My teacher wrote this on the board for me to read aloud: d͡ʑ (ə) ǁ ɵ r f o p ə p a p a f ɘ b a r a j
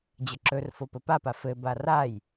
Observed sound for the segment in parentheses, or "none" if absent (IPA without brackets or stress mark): ə